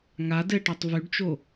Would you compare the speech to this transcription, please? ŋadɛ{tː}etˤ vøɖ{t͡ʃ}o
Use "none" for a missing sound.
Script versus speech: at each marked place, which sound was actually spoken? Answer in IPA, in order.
ʈ, t͡ʃ

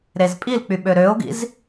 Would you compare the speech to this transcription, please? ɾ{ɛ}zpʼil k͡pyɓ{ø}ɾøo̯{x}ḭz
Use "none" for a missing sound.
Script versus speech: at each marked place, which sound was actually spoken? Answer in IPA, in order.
e, ø, ɡ

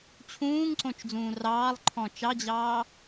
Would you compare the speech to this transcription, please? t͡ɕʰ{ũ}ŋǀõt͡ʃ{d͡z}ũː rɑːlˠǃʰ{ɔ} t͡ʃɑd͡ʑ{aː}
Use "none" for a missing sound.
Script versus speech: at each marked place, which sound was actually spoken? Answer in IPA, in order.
ũː, d͡z, ɔ̃, ɑː

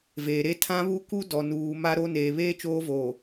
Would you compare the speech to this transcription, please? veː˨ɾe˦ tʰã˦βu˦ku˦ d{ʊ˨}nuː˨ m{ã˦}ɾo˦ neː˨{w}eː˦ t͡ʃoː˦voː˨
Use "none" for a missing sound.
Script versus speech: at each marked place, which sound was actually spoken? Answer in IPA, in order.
ɔ˨, a˦, β

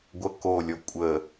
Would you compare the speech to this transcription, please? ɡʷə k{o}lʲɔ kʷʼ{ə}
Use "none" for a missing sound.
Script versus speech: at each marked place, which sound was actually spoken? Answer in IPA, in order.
o, ə

